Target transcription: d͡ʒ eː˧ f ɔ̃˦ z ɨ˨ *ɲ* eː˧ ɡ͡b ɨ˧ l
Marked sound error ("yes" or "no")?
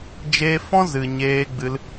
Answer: no